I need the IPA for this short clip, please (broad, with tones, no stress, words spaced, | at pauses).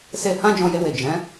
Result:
se˧ hã˦ d͡ʒɔ̃˧je˧we˨ d͡ʒɛ̃˨˦